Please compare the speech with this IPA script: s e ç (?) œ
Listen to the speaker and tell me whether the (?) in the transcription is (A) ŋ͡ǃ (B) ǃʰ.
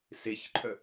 B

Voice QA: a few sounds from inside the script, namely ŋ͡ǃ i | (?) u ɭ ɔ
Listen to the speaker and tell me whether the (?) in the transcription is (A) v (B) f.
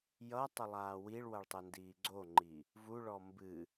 A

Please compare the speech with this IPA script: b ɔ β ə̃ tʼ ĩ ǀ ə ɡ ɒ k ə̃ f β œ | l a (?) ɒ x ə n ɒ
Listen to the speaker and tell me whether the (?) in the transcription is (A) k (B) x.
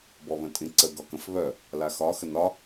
B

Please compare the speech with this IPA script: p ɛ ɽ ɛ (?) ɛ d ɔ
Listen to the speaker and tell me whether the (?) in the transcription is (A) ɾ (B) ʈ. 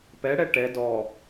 B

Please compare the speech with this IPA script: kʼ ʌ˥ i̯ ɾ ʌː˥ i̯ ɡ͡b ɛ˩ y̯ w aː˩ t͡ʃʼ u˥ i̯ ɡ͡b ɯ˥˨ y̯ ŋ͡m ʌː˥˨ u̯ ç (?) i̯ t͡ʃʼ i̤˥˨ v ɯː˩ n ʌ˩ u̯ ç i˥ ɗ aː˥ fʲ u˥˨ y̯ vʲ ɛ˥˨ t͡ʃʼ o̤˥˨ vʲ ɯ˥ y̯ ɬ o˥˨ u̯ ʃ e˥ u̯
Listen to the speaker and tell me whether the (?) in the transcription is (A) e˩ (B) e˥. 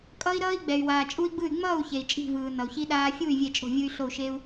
A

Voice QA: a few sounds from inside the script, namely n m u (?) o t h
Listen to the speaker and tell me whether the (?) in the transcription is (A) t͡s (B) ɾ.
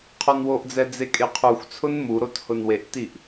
B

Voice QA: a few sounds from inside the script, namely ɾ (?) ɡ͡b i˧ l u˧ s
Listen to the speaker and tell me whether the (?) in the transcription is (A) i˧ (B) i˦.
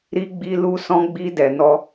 A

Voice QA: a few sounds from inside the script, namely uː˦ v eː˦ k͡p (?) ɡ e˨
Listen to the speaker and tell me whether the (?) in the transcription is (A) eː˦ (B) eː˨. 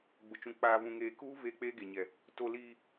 A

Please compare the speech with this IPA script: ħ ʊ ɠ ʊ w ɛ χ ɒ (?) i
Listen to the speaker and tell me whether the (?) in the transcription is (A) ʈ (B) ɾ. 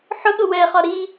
B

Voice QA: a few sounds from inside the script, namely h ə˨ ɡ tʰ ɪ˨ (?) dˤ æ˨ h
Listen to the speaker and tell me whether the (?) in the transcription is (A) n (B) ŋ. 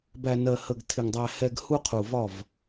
B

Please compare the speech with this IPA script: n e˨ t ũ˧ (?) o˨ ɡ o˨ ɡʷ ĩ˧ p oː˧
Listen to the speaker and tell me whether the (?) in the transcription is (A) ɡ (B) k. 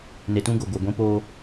A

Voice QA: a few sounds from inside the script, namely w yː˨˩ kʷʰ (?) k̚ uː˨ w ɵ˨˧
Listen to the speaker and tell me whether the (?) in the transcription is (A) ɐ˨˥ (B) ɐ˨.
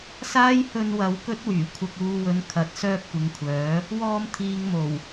B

